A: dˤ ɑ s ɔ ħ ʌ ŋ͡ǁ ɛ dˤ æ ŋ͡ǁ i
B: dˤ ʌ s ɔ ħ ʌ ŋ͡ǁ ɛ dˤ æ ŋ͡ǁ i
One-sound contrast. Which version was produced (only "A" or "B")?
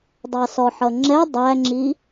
A